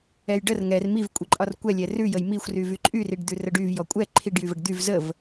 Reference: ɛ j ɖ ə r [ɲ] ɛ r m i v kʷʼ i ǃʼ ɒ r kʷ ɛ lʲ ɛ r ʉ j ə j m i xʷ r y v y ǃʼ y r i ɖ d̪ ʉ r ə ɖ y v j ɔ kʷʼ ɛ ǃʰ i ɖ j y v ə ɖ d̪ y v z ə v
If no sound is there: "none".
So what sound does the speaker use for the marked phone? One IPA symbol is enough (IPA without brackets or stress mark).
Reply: ŋ